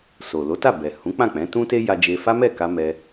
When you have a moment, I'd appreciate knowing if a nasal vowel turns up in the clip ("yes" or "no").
yes